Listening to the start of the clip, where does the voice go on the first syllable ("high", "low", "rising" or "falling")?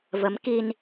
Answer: rising